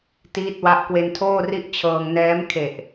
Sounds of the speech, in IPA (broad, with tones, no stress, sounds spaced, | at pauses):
t iː˦˥ t̚ w a˦˥ ʔ k w e˧ n tʰ oː˥˩ r i˥˩ ʔ t͡ɕʰ ɤː˧ ŋ n ɛː˦˥ m kʰ e˨˩ ʔ